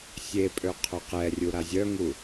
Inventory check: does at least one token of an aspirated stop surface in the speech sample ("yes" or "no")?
yes